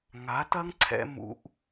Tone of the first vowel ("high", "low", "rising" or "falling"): rising